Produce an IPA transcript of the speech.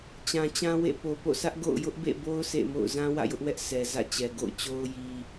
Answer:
t͡ɕ ã˨ t͡ɕ ã˦ w ḛ˦˨ p o˨ p o̰˦˨ sʰ ä˦ ʔ ɡ o̰˦˨ ʊ̯ j ʊ˦ ʔ b ḛ˦˨ b o˦ ʊ̯ s ḛ˦˨ m o̰˦˨ ʊ̯ z ã˦ w ä̰˦˨ j ʊ˦ ʔ w ɛ˦ ʔ sʰ ɛ˨ z ä̰˦˨ t͡ɕ ɛ˨ ɡ o̰˦˨ ʊ̯ t͡ɕ o˦ ʊ̯ j i˦

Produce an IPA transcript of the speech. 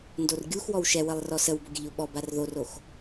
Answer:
n d o r ɡʲ u x w ɔ w ʃ ɛ w ə lˠ r ɔ s ə w b o ɡʲ ə ʎ o ɓ ɔ b a r ð o r o x

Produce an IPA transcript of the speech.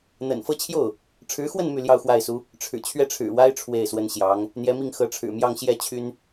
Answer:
n̪ ə̰˨˩ n f ɤ˥ t͡ɕʰ j o˥˩ ʊ̯ | ʈ͡ʂʰ ɻ̩˧˥ x w ə˥˧ n m y˥˧ l j ɑ˥˧ ʊ̯ x w a˥˩ ɪ̯ s u˥ | ʈ͡ʂʰ ɻ̩˨˩ t͡ɕʰ ɥ ɛ˥˩ ʈ͡ʂʰ ɻ̩˨˩ w a˥ ɪ̯ ʈ͡ʂʰ w e˥˩ ɪ̯ s w ə˥ n ɕ j ɑ˧˥ ŋ | n̪ j ɛ˧˥ m i˥˩ ŋ x ɤ˧˥ ʈ͡ʂʰ ɻ̩˨˩ m j ɑ˥˧ ŋ ɕ j ɛ˥˩ t͡ɕʰ y˥ n

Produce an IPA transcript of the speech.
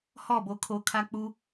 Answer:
h ɔ˦˨ b o˨ kʰ o˨ kʰ a˦ k͡p u˦

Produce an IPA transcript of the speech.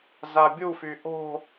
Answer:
z a bʲ u f y ʔ o̤

